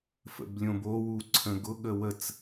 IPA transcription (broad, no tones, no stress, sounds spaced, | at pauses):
f ə̰ b lʲ õ b o w u ǀʰ ə̃ ɡ ʊ ɠ ə w ə t͡s